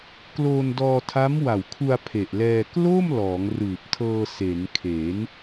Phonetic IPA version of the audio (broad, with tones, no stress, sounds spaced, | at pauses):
k l oː˧ n d ɔː˧ tʰ a˦˥ m w a˨˩ w kʰ u˧ a̯ pʰ e˨˩ ʔ l ɛː˧ k l o˥˩ m l ɔː˩˦ ŋ r ɯː˨˩ p̚ tʰ ɤː˧ s e˩˦ n kʰ e˩˦ n